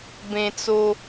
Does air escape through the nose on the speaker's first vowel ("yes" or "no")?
yes